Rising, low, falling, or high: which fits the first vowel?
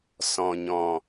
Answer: low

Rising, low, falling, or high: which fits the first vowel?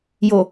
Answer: low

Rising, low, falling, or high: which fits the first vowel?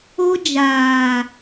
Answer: high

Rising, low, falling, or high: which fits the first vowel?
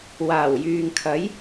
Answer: low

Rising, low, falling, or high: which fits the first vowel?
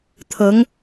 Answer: rising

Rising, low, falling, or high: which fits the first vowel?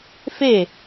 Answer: falling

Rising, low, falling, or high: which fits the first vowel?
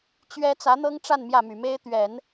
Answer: high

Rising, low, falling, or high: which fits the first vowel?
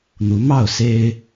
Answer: rising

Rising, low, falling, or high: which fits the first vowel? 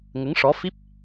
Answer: rising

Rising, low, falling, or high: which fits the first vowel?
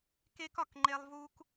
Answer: high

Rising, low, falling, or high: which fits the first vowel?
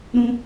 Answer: high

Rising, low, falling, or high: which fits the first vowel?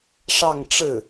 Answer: falling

